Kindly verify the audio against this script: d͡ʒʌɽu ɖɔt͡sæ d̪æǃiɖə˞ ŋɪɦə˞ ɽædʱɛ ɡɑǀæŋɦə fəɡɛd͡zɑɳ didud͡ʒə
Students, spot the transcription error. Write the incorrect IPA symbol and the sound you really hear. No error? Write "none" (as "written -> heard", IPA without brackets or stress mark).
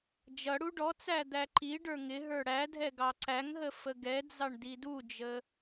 none